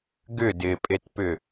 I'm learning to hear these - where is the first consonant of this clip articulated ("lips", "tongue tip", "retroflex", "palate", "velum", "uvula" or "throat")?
velum